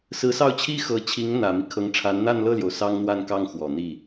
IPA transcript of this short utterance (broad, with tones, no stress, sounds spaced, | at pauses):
s ɹ̩˧˥ s ɑ˥˩ ʊ̯ t͡ɕʰ i˥ x ɤ˧˥ t͡ɕʰ i˧˥ ŋ n̪ ä˨˩ m i˦ kʰ ɤ˧˥ ŋ ʈ͡ʂʰ a˧˥ n n̪ a˥˧ n l ɤ˥˩ l j o˩ ʊ̯ s ɑ˥ ŋ n̪ w a˥˧ n k ɑ˥˩ ŋ x w ɔ˨˩ n̪ i˥˩